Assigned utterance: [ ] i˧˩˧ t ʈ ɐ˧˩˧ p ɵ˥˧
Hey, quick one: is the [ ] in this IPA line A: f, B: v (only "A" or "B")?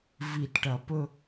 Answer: B